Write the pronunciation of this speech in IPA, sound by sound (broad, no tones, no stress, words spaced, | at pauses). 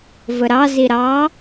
vəɾɑ ziɾɑ